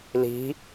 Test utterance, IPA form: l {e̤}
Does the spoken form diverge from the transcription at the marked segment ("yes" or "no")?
yes